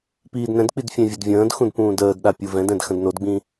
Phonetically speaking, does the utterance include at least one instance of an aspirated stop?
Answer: no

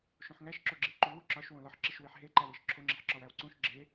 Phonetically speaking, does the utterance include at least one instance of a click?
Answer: yes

